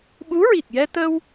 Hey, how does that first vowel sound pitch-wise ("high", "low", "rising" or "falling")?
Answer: rising